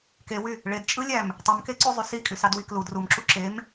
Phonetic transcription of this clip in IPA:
k e w y | ɭ e d t͡ʃʼ ɯ lʲ æ m | tˤ ɯ m k e ǀ u zˤ y s i kʼ y s ɑ d w i k l u d r u m ǁ u ǁ e m

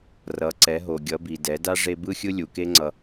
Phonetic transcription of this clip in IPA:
r ʌ˩˧ ǀ ɛ˩˧ ɦ o˩ ɡʲ ʌ˩˧ b i˩ d ɛ˩˧ d a˥ ʐ e˧ b ɯ˥ xʲ ɯ˥ lʲ u˩ k e˥ ŋ͡ǀ ʌ˧

